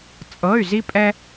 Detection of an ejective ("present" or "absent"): present